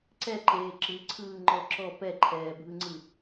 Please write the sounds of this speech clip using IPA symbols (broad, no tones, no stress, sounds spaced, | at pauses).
ǀ ɛ ǃ eː ǁ ɯ ǀʰ ɯː ŋ͡ǃ ɔ ǁ ɔ p ɛ ǃʰ ɛː bʱ ɯ ŋ͡ǀ ɯ